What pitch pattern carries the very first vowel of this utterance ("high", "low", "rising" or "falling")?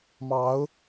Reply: rising